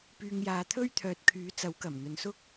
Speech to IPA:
p yː˧ ŋ j aː˧ t̪ʰ ɵ˥ ɥ t̪ʰ œː˨ t̚ kʰ yː˨˥ t͡s ɐ˨˥ w k ɐ˨˩ m n̪ ɵ˨ n s ʊ˥ k̚

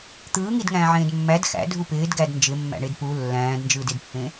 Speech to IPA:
t̪ ɯː ŋ i d ŋ æ̃ː ʕ ẽː d mː æ d x æ̰ dʱ u p ɪː d ɡ æ d n d͡ʒ ɪ mː æ̰ ɳ e d p u lː æ̃ː d n d͡ʒ ɯː d ɪ d pː ẽ

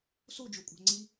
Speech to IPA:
s o d͡ʒ o kʷʼ æ̤ ŋ͡ǀ i

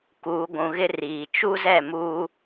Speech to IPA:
k uː˨ ɡʷ ũ˨ ɣ ɪ˦ r iː˨ t͡ʃ u˦ z ɛ˦˨ m uː˦

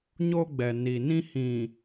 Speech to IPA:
ɲ o˦ ɡ͡b ɛ˨ n i˨ n ĩ˦ h ĩ˨

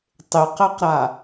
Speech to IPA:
tˤ ɪ q ɛ q ɾ a

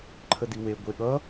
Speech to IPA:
ǃʰ ə d i w e ɡʷ e ɠ ʌ

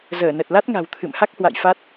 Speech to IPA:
z əː˧˩ n ə˨˩ t̚ l a˦˥ t̚ ŋ a̤˨˩ w t̪ʰ ɨ̰˧˨ m h a˦˥ k̚ h w a̰˧˨ j f a˦˥ t̚

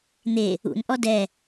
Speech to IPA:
n̪ e | ṵ n ʔ ɔ d ɛ

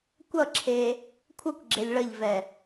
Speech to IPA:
kʷ ʌ ǁʰ e | kʷʰ ʌ kʷ ɡ͡ǁ e lʲ ɭ ʌ ʎ v ɛ

